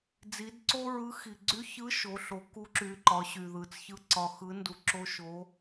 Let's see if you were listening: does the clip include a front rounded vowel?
yes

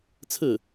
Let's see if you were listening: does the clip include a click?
no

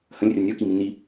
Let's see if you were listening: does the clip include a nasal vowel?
yes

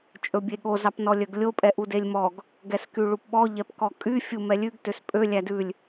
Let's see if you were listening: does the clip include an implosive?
yes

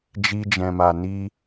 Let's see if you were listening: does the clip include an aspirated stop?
no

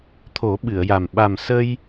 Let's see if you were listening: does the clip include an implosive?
yes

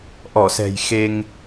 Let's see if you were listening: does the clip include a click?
no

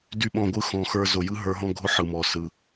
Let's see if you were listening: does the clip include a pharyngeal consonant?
yes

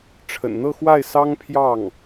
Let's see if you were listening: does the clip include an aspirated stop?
yes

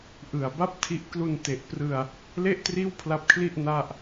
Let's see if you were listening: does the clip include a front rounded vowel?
no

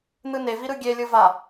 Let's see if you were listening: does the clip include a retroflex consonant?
no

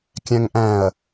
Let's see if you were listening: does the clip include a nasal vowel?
yes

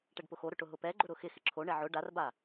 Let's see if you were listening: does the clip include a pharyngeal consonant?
yes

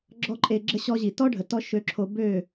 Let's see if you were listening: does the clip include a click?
yes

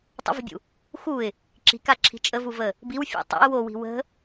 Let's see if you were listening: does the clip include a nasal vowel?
no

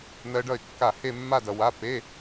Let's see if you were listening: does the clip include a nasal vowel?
no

